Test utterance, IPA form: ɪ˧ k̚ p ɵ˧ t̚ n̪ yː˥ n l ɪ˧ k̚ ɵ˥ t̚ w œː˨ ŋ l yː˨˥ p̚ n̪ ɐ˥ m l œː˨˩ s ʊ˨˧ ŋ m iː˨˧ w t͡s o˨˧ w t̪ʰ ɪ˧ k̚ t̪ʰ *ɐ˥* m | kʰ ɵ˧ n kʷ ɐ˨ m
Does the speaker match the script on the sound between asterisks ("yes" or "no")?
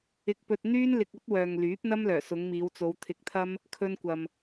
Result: yes